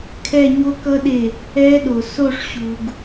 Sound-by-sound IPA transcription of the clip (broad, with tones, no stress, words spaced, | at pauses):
kʰɛ˦˨ɲo˦˥kʌ˦˥ɗe˦˨ | ɛ˦˥ɗo˨ so˦˨ʂɕu˨ɡ